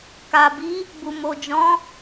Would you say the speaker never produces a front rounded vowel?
yes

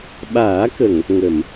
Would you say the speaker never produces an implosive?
no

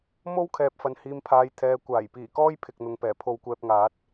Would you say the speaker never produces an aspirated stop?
no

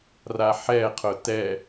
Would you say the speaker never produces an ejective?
yes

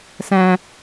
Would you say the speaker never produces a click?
yes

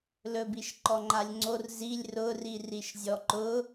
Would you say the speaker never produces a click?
no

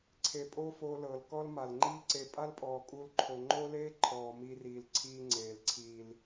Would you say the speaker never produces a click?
no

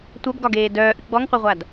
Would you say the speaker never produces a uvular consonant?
no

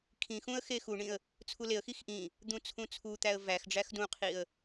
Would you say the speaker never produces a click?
yes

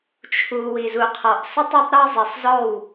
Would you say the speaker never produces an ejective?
yes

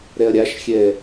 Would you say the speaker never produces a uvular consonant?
yes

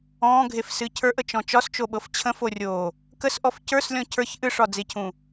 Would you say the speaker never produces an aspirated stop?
no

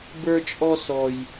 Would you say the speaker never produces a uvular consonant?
yes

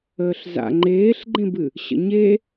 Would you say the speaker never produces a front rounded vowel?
yes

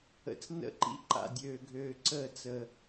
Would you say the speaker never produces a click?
no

